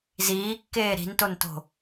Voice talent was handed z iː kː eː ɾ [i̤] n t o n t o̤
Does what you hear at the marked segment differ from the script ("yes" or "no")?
no